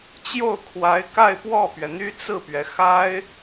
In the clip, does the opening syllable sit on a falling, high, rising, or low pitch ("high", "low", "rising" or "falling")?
falling